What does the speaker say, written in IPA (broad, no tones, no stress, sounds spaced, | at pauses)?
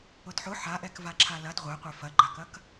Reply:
ʊ d ħ ʊ ħ a ʔ ɛ k v a ǁʰ a l ɐ d ʁʷ ɛ qʷ ɛ f ɐ ɡ͡ǃ a k ɐ k